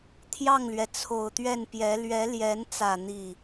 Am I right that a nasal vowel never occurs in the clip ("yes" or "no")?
yes